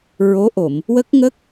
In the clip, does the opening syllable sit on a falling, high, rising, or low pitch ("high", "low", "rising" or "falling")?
rising